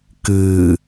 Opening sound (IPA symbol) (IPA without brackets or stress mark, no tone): k